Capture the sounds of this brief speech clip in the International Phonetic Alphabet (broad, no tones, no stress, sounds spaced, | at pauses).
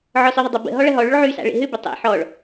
ʕ ɔ s ʏ ðˤ ʏ dˤ ʏ b ə̰ ɦ ɔ ɭ ɐ ɦ ɔ ɭ ʏ ɭ ʕ y s a̰ ɭ ḛ ɦ ʏ b ɪ tˤ ḛ ħ ɔ ɭ